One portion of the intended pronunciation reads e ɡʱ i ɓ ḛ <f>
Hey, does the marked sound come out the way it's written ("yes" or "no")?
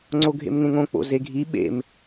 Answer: no